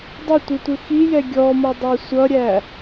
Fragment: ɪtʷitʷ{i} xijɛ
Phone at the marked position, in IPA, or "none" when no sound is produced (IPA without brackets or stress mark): ɪ